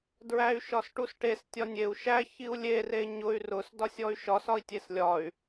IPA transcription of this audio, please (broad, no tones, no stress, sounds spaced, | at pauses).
d ɹ æ y̯ ʃ ɒ s ʈ u s ʈ e s tʲ ɒ nʲ e u̯ ʃ æ ç i u̯ lʲ e r e ɲ ʊ y̯ r ʊ s d ɒ sʲ ɔ y̯ ʃ ɒ s ɒ i̯ tʲ e s lʲ ɒ y̯